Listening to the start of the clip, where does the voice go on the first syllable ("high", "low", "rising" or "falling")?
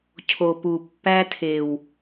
low